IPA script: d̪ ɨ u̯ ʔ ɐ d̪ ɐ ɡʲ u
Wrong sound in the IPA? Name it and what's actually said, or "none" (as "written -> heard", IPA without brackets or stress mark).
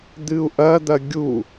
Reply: none